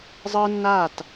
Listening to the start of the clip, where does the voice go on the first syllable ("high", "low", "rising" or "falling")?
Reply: high